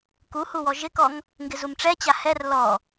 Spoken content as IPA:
kuhuwɔ ʒɪkɔŋ | ŋɡɪzumʈ͡ʂɛt͡ɕa hɛr lɔ

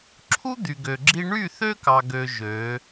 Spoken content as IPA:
ǁʰu˦ d̪y˨ɡø˨ɡ͡ǁi˦ ɳy˦˨θø˦kɑ˨ɡø˨ ʒø˨˦

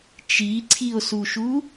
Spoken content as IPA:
t͡ʃiǀʰio̯suʃu

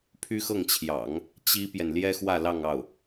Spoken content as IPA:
pʰy˥xɤ˥˩ŋt͡ɕʰjɑ̰˨˩˦ŋ | t͡ɕi˥pjɛ˨n ljɛ˥xwä˥˧lɑ˥˧ŋ ɑ˥˩ʊ̯

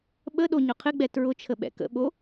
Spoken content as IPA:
ɓəɗo ɲʊqʰɪɡ͡bɛ tɹʊt͡ʃʰə ɓɛ̰kə̰ɓo

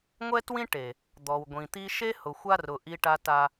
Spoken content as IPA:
ŋʷɛ˦twĩ˦ ʈe˨ | d̪ɔ˨wɡʷĩ˨t̪i˦ ʃe˦hʊ˨xʷa˦rʊ˨ ʔi˦ ʈa˦ta˦

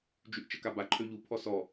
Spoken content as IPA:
d͡ʒyʔt͡ʃəkaba ǃʰøʎu pʰɔsɔ

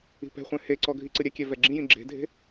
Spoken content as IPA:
i̤pɛ̤χʷɛ̃ heǀɔ ɡʱiǀɨɾʲɛkʲɛ vɛɡ͡ǁĩjĩ ɡ͡ǁe̤dʱe̤

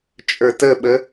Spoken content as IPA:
t͡ʃʼə˞təɓə

